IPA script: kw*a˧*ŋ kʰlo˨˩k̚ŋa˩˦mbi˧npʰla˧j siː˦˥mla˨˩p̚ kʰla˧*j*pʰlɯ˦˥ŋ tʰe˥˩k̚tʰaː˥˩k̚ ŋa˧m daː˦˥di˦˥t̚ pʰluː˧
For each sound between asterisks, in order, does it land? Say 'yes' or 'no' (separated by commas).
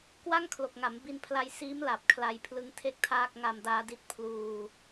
no, yes